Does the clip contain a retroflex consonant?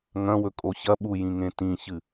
no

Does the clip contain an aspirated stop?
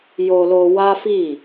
no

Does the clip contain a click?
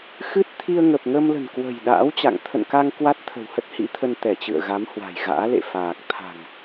no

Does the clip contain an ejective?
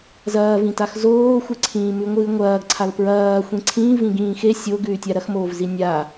no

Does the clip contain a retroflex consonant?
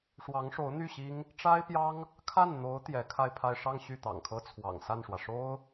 yes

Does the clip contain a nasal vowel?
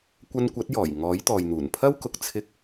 no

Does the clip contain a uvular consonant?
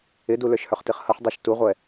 yes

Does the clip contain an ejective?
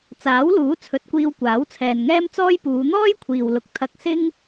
no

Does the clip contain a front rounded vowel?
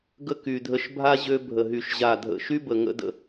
yes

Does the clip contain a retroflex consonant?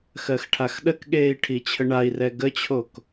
yes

